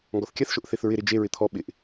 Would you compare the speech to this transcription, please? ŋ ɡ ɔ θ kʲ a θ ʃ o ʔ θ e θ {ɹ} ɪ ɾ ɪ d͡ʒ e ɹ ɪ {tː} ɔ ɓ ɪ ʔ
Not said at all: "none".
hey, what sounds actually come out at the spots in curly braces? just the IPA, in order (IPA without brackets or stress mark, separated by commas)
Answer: ɹ, t̪ʰ